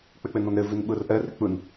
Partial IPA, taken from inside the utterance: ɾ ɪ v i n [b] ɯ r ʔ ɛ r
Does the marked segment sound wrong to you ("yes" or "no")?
yes